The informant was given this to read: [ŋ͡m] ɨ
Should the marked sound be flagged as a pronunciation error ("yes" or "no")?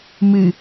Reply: yes